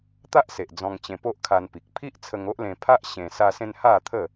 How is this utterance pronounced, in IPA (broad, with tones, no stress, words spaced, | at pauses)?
t̪a˦ʔse˨ʔ d͡zɔ̃˧ŋt͡ɕẽ˧po˦ʔkʰa˧n pi˨k̚pʰi˦ʔ t͡sʰə˧ŋo˦ʔlẽ˧ pʰa˦ʔ ɕẽ˧ sa˧sẽ˧n ha˥˧t̪ʰə˥˧